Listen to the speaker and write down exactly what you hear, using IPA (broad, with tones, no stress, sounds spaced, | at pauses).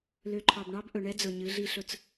l ø˨ ǃʰ ɑ˨ b ɳ ɑ˦ b ʔ ɵ˨ ɳ ɛ˦ d͡z ɵ˨ ɲ ɨ˨˦ ɮ i˦ ɬ ɵ˦ t͡s